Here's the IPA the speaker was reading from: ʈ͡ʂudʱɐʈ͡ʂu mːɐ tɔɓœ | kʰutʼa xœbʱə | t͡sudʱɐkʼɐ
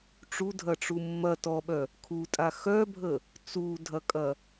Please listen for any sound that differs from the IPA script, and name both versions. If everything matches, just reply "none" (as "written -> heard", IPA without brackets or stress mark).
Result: none